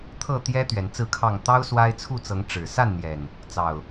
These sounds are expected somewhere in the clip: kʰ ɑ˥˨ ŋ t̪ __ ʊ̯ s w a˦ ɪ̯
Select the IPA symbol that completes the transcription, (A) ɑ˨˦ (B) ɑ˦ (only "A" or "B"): B